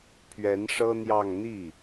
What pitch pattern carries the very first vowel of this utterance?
rising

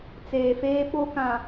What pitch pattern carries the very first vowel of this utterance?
low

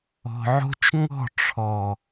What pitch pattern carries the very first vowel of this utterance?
low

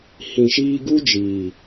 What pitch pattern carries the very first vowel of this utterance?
low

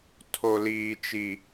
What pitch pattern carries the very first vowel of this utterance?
low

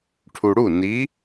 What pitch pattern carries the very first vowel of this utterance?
low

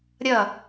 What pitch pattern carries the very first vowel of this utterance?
falling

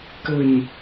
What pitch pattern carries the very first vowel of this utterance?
low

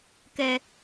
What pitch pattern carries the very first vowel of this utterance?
low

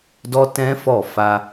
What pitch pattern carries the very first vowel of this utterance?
high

